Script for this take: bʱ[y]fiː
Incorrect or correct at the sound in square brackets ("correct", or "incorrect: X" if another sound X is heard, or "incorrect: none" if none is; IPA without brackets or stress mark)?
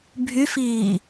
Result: correct